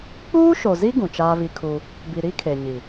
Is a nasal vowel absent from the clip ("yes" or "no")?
no